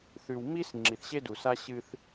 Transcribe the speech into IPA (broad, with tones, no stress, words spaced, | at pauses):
θʉ˨wmi˦s ŋ͡ǁi˨θɕe˦du˨sa˦ ɕɨ˦θ